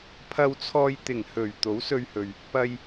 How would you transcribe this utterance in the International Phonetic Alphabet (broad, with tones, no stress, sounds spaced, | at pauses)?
pʰ ɐ˨ w t͡sʰ ɔː˨ j t̪ ɪ˨˩ ŋ h ɵ˨˩ ɥ t̪ o˨˥ w s ɵ˧ ɥ h ɵ˨ ɥ | p ɐ˨ j